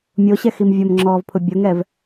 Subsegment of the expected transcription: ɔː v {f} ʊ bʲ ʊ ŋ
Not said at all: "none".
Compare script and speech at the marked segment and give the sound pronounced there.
pʰ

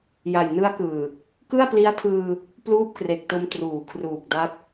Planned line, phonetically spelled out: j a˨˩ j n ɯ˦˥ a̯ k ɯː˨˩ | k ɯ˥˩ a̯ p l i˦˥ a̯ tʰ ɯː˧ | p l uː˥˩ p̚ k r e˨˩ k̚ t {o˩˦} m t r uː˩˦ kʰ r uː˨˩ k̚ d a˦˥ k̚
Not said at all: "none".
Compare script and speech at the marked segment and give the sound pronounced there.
o˧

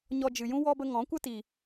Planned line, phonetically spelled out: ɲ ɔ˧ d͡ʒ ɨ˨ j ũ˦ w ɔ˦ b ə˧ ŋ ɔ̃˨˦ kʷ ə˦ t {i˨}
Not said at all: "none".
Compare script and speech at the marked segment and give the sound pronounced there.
i˨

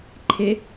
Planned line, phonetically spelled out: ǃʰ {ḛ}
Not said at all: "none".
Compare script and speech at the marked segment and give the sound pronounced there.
e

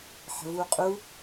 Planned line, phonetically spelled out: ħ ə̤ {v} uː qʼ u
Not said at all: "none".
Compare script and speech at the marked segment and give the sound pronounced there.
v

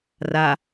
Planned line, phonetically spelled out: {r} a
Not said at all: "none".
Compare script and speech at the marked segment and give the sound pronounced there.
r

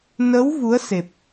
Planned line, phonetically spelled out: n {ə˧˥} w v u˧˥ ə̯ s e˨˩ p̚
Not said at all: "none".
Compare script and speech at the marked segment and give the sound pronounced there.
ə˧˥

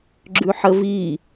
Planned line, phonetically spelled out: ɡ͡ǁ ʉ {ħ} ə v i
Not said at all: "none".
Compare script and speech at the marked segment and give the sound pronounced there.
ħ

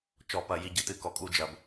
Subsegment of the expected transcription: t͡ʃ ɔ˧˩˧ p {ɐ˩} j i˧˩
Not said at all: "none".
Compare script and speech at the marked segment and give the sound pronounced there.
ɐ˧˩˧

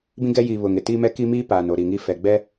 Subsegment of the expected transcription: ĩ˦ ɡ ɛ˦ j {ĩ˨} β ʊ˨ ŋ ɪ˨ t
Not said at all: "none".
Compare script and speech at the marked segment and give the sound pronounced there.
i˨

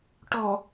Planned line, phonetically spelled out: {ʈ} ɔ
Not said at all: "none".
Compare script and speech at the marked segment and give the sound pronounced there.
ʈ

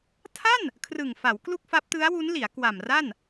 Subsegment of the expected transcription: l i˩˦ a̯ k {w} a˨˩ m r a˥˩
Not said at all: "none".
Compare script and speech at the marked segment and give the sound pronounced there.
w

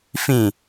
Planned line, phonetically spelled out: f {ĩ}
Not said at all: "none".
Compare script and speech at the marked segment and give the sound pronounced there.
ĩ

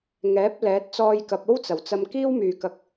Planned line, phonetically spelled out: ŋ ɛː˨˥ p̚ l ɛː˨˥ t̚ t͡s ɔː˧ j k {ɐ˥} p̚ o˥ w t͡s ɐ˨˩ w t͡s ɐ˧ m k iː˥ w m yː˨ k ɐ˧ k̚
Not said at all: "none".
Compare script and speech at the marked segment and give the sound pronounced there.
ɐ˨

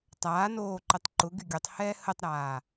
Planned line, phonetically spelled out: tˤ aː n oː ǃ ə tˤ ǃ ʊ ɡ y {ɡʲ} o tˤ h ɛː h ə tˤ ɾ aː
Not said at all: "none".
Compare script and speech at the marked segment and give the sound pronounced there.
ɡʲ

